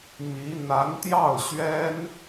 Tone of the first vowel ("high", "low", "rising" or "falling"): rising